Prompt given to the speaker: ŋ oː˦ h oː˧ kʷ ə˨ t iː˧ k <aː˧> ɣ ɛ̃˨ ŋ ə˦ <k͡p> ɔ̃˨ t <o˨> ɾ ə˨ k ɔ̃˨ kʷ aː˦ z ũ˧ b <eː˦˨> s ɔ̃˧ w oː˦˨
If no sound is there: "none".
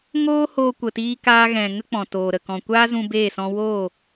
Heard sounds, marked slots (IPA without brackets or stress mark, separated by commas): aː˧, k͡p, oː˨, eː˦˨